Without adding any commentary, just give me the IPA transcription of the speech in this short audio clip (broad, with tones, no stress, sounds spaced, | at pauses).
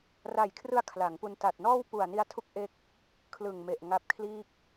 r a˨˩ j kʰ r ɯ˧ a̯ kʰ l a˩˦ ŋ p u˧ n t a˨˩ t̚ n ɔː˥˩ w p u˨˩ a̯ n i˧ a̯ tʰ u˦˥ k̚ ʔ e˦˥ k̚ | kʰ l ɯ˨˩ ŋ m e˨˩ ʔ ŋ a˦˥ p̚ kʰ l iː˥˩ k̚